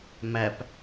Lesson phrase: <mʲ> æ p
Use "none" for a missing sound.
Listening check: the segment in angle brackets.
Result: m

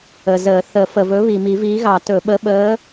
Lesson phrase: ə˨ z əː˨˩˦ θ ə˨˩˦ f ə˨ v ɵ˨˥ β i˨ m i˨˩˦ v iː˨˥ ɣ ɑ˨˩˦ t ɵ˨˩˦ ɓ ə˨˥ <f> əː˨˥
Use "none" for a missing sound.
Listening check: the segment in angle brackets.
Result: ɓ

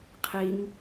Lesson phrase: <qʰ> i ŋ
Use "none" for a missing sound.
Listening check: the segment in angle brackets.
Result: qʰ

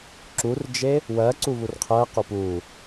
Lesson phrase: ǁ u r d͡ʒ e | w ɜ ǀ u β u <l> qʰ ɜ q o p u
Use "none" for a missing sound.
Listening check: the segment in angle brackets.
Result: r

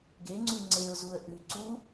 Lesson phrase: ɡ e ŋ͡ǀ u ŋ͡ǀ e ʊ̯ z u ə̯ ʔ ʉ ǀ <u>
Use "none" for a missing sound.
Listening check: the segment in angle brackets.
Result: u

